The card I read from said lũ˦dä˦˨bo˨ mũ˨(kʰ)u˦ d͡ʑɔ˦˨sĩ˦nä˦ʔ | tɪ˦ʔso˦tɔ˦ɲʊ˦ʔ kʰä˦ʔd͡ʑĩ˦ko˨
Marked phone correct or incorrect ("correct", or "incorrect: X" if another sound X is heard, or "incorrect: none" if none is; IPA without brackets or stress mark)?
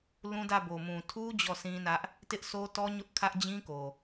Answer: incorrect: tʰ